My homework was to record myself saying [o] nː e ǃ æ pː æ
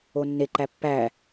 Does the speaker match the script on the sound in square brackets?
yes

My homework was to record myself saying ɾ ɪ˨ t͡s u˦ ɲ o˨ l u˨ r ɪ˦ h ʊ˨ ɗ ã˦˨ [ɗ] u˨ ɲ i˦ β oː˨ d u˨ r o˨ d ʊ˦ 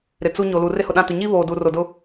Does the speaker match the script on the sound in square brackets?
no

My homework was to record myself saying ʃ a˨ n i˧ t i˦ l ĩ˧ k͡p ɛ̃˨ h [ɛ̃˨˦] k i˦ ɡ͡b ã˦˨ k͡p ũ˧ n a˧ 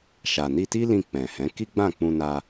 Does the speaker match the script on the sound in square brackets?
yes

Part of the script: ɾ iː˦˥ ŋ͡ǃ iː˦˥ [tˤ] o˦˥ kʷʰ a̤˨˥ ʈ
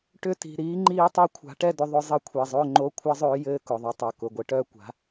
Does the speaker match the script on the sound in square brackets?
yes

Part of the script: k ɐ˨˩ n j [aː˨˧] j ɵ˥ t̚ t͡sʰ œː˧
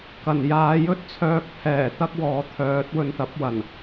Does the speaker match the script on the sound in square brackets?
yes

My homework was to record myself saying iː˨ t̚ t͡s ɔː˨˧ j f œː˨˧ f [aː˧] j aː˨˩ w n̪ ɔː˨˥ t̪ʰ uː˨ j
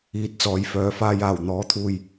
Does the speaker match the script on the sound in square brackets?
yes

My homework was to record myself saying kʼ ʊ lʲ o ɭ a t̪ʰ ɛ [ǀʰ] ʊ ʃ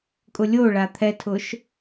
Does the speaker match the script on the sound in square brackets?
no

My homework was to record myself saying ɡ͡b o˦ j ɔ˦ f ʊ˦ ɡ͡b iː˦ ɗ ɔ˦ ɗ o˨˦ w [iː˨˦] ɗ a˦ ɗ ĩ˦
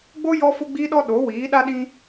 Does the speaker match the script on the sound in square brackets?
yes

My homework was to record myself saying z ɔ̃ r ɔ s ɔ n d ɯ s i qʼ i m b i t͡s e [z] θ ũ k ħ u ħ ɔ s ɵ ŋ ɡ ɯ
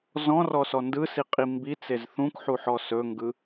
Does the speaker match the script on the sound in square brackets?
yes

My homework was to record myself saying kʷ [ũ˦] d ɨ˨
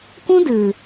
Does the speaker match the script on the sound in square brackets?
yes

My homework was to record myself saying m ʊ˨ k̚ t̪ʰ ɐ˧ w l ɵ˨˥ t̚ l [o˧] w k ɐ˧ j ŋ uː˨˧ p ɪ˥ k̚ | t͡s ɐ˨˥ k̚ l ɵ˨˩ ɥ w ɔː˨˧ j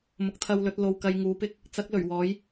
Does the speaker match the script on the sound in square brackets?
yes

